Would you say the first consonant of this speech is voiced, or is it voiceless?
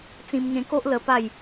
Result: voiceless